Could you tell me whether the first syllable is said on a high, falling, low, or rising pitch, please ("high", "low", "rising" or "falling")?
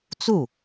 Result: falling